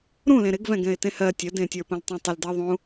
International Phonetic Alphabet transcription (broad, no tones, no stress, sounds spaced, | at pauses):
ɾ ũ l ẽ ɾ ɪ ɡ v ɛ̃ ɡ ɛ̃ ɪ̯ t ẽ h ɜ tʲ ə d ẽ tʲ ə˞ p ə̃ l tˤ ũ tˤ ɪ l d ɜ ðˤ ũ